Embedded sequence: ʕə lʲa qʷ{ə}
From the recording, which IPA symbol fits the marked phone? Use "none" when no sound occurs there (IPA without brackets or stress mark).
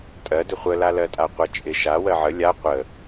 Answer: ə